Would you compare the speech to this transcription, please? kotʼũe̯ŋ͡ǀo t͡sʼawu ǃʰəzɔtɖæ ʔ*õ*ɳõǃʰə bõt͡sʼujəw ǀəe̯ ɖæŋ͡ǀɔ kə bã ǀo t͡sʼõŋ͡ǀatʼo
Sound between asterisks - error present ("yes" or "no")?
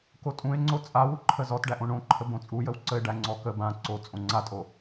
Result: no